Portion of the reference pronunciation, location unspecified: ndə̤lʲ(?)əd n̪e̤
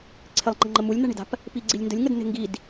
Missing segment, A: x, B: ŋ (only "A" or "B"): B